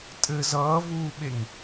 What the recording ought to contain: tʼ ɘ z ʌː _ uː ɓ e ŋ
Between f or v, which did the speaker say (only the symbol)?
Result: v